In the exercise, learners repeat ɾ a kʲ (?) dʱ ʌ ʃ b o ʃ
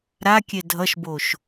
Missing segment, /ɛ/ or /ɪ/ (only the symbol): ɛ